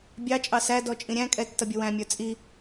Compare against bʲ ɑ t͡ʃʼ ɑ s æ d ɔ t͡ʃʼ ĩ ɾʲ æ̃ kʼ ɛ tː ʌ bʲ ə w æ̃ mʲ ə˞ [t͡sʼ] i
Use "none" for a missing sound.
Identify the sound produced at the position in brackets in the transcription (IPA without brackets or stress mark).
t͡sʼ